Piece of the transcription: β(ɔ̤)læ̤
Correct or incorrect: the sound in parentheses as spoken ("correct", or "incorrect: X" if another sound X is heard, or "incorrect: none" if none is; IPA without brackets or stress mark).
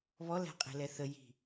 incorrect: ɔ